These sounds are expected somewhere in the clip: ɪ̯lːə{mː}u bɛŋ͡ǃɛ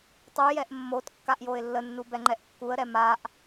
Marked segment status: incorrect: nː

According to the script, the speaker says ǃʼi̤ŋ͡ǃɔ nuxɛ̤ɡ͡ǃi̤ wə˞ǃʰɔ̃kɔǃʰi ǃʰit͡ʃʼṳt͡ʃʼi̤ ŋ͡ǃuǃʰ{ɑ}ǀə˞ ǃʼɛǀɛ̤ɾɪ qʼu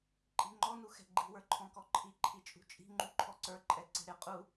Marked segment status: incorrect: ɔ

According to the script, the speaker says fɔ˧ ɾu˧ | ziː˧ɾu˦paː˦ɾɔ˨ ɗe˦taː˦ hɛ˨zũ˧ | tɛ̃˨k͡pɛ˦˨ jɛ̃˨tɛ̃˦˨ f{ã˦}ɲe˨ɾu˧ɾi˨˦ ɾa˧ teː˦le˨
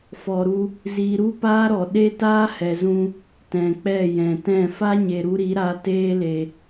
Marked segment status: incorrect: a˦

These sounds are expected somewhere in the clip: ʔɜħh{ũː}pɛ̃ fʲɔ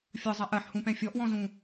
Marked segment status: incorrect: ũ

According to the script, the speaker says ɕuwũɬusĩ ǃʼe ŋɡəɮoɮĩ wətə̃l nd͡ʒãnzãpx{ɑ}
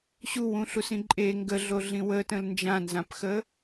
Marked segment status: incorrect: ə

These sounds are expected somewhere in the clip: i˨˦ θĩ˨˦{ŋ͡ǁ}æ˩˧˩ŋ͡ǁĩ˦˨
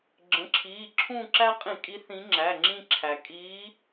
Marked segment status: correct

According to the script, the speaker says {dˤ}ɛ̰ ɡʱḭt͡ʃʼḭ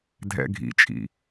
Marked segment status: incorrect: dʱ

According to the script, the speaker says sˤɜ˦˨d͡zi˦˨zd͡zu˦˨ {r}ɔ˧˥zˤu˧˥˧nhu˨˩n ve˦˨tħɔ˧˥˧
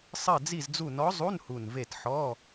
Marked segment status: incorrect: n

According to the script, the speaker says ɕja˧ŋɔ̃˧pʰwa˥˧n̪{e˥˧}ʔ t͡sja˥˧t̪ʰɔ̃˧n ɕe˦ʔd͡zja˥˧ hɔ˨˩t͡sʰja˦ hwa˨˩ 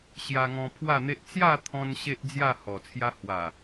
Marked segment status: incorrect: e˦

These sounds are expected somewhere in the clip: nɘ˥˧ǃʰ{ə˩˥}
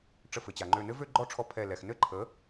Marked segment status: correct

